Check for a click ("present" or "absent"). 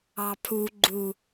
present